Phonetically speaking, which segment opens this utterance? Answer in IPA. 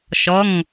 ʃ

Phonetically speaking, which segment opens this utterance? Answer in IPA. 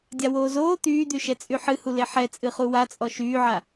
dʲ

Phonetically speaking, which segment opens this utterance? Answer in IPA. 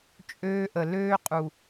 t͡ʃʼ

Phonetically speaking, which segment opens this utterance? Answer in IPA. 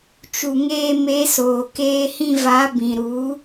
t͡ʃ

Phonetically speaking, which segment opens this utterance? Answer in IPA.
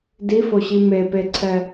d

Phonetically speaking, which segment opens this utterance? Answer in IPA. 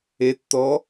e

